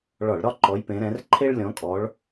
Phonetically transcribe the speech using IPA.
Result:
ɭ ɒ˧˩˧ ɭ ɾ ɒ˥ ǃ ɔ˨˦ j p ẽ˨˦ ɾ ɛ̃˨˦ r ǃʰ e˥ ɭ lʲ ɔ̃˨˦ kʼ ɔ˨˦ ɭ

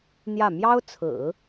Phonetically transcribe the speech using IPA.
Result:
n̪ j ä˥˩ m j ɑ˥ ʊ̯ t͡sʰ ɹ̩˨˩˦

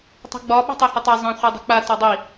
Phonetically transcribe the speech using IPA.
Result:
tˤ a̤ ɡ͡b ɒ ɓ ṳ tˤ ɛ h ɐ tˤ a zˤ ã χʷ a dˤ i̤ k͡p a t ɒ dˤ i

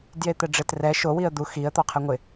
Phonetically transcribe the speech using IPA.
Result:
d j e t̪ ɛ ɖ͡ʐ ɪ t r ɛ ʃ o w i ə̯ d̪ u x i ə̯ t̪ ɔ qʰ ɛ ŋʷ ɪ

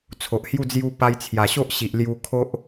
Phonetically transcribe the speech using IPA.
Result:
t͡sʰ o˨ ʔ h j u˥˧ d͡z j u˧ p a˧ j t͡sʰ j a˨˩ ɕ o˦ ʔ ɕ i˨ ʔ l j u˧ kʰ o˦ ʔ

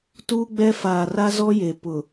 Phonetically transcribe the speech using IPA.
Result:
t uː˦ ɡ͡b ɛ˦ f aː˨ r a˦ z ɔ˦ j e˨ p ʊ˨

